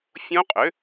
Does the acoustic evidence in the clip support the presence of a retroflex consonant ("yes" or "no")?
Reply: no